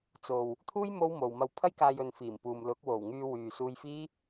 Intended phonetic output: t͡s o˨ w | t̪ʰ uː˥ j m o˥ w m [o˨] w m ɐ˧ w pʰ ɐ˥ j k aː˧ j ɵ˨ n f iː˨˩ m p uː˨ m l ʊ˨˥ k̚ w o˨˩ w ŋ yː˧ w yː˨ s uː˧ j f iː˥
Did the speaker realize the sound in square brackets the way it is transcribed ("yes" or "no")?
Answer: yes